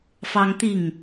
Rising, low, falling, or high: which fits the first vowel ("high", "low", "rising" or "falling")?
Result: high